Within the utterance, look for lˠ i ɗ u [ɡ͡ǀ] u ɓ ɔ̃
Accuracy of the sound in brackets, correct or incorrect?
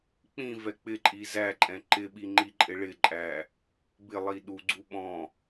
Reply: correct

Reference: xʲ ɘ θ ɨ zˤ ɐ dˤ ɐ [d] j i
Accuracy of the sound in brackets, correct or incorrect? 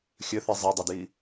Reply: correct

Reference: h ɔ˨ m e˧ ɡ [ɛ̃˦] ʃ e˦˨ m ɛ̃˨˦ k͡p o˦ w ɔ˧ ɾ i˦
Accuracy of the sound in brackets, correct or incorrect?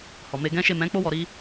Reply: correct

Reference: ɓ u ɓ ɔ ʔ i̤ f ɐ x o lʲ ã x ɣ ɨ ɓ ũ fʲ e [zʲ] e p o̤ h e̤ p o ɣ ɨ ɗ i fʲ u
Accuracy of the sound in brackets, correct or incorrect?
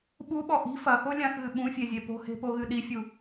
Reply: correct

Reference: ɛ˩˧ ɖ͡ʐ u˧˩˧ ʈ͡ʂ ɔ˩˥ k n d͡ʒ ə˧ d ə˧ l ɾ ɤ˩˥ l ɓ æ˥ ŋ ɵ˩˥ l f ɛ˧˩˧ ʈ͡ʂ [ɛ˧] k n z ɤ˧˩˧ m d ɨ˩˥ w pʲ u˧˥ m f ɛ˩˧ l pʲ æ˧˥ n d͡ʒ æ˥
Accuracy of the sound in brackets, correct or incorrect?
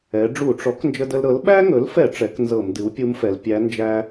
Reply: incorrect: ɛ˩˥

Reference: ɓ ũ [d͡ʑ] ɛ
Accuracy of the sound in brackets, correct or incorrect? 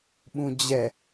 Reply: correct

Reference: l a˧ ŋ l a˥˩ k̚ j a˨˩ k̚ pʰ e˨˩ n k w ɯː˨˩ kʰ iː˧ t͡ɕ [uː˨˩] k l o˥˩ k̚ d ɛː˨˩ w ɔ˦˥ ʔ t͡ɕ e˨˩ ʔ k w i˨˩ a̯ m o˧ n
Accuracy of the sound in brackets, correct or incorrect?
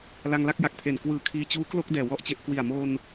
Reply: incorrect: uː˦˥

